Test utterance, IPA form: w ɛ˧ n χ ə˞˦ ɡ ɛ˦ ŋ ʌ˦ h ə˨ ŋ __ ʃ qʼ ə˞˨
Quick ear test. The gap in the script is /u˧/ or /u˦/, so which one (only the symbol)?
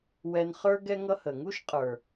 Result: u˦